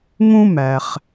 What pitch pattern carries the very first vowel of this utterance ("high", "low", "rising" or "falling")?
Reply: high